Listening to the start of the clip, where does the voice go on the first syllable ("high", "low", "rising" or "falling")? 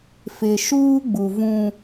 low